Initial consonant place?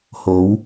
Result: glottal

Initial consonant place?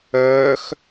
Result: velar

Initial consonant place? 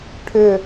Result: retroflex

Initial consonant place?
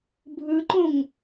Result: labial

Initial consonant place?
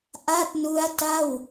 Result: glottal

